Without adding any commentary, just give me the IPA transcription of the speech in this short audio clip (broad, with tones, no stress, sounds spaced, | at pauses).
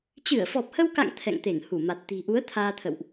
t͡ɕ ɨ˧˩ ə̯ f ɔ˨˩ p̚ h ə˧ w k a̰˧˨ ŋ t̪ʰ ɛ̰˧˨ ŋ t̪ e˧˩ ŋ h u˧˩ m a˨˩ t̚ t̪ i̤˨˩ ʔ u˨˦ ə̯ t̪ʰ aː˧ t̪ʰ ə̰˧˨ w ʔ